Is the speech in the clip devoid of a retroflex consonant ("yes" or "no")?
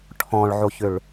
no